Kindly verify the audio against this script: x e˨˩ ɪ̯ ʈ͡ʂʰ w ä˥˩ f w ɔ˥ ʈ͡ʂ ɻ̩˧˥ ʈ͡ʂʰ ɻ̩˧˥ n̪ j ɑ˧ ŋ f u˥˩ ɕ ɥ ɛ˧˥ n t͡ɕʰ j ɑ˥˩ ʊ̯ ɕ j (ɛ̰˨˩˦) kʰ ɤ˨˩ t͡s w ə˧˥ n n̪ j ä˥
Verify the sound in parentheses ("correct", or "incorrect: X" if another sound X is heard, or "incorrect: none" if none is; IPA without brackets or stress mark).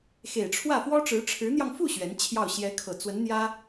incorrect: ɛ˧˥